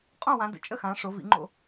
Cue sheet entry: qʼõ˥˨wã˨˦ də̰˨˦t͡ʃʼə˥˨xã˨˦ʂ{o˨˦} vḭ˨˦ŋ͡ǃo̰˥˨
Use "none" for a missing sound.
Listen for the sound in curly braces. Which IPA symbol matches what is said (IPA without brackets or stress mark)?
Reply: o˨˦